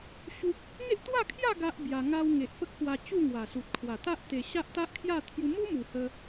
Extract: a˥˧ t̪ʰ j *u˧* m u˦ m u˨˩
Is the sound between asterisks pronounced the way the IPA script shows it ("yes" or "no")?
yes